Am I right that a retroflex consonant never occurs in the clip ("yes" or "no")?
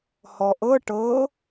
no